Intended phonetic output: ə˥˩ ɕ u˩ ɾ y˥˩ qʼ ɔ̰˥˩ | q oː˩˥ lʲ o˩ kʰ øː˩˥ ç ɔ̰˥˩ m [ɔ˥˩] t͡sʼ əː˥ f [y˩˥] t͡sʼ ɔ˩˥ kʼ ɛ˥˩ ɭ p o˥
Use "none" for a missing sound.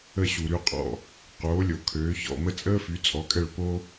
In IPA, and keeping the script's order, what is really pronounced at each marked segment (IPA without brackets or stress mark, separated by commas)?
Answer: ə˥˩, y˩˥